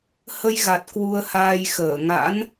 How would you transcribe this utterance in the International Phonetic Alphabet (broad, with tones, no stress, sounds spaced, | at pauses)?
h ə˧ j ɣ a˨˩ t̚ k w u˧ ə̯ h aː˧ j x əː˧˩ ŋ a̰˧˥ n